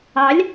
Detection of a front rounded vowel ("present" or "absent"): absent